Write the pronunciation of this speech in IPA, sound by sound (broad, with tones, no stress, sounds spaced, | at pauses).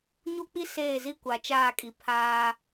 ɲ u˦ k͡p i˦ s eː˦˨ z i˦ kʷ a˨ t͡ʃ aː˦˨ kʼ i˨ pʰ aː˦